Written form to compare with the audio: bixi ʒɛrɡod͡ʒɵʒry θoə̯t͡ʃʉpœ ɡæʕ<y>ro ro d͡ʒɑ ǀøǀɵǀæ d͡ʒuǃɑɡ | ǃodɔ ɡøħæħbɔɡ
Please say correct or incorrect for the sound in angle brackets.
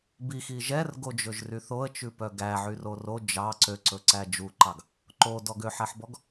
correct